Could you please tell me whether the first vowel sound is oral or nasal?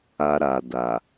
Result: oral